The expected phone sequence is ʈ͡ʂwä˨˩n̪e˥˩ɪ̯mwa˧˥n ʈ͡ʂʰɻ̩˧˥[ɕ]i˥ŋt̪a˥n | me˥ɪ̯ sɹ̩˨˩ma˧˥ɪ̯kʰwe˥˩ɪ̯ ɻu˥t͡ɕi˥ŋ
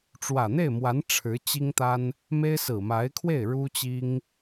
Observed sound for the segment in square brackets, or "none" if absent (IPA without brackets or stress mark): t͡ɕ